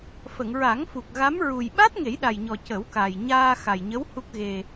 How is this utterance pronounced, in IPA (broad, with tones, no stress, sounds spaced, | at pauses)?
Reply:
f ə˨˩˨ ŋ ɹ a˨˩˦ ŋ f u˨˩ k̚ ɣ a˧˥ m ɹ u˨˩ j ɓ a˦˥ t̚ ŋ e˨˩˦ j ɗ a˨˩ j ɲ ɔ˨˩ c ə˨˩˦ w k a˨˩ j ɲ aː˧ x a˨˩ j ɲ ə˧˥ w h u˦˥ k̚ ɣ e˧